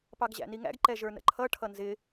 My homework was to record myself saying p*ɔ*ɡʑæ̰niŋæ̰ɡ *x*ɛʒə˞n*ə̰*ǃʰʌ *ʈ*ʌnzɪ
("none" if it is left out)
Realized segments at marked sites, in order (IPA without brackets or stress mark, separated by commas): ɑ, ǃ, ə̰, ʈʰ